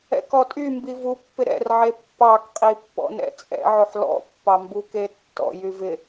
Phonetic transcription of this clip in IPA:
ɛ̰kɔtʼy mbivupːɪ ɾɛ̰rʕe pːɑkqʼi pːɔ̰nɛ̰t͡sʼɛ̰ʕoħ lɔ̰pːɑmbu ketːɔ̰jy vɪ

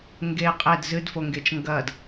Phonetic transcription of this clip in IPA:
ŋɡe qʼed zɨdfoŋɡet͡ʃ ŋɡɐd

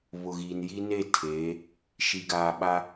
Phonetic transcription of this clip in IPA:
βʊ˨ɣiː˨nji˦ne˦˨ tʰeː˨˦ | ʃi˨ɡaː˨ ɓa˦

